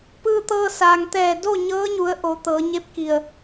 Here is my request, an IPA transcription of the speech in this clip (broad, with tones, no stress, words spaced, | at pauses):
pɯː˧t̪ɤː˧saː˩ŋ t̪ɛː˧˩do˥˨ ɲɤː˧˥ɲu˩˧ə̯ ʔo˩˧ t̪ɤː˩˧ɲe˥˨p̚ki˧˩ə̯